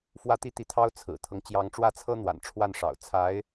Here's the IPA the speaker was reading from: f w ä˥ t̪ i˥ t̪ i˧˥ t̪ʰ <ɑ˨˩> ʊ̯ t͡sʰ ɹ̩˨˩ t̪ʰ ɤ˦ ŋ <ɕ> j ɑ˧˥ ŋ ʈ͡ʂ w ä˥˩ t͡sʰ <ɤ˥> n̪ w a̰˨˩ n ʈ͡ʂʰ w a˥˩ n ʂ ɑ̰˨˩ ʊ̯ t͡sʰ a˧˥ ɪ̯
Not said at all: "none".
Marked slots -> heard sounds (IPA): ɑ˥, t͡ɕ, ɤ˥

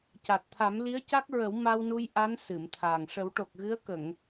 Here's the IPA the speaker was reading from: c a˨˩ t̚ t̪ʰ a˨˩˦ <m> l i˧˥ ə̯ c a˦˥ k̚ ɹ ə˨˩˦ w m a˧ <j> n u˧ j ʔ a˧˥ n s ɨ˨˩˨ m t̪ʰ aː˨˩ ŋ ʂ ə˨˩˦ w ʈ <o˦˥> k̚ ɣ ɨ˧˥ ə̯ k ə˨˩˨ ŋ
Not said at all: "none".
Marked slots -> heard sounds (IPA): m, w, o˨˩

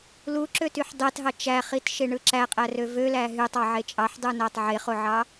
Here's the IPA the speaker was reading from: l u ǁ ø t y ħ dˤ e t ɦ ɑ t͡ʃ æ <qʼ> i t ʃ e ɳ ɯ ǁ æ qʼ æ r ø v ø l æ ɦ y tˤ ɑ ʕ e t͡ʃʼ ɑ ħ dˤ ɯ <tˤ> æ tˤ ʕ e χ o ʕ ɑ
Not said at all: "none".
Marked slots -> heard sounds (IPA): χ, n

